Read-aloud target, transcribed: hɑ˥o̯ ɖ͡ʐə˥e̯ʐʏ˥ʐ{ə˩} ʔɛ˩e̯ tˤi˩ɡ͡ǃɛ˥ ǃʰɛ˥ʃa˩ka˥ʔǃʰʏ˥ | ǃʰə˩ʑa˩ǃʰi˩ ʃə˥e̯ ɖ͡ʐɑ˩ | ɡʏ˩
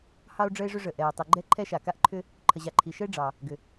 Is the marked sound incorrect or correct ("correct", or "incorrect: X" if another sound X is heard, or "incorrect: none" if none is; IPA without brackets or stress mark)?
correct